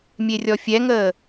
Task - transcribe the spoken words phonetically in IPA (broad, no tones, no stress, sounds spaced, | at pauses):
mʲ e rʲ ɔ fʲ ɛ ŋ əː